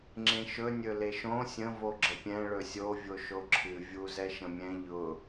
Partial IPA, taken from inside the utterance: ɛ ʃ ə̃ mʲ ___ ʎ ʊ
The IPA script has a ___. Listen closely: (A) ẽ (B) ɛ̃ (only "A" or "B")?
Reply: B